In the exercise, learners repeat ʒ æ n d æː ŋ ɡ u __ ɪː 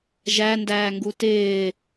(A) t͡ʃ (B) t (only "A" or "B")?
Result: B